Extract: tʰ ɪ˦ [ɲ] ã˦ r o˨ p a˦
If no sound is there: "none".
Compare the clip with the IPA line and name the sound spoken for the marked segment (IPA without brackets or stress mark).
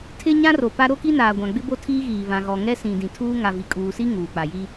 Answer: ɲ